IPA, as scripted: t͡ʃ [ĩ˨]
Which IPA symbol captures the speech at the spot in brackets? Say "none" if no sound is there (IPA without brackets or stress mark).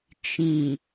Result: ĩ˨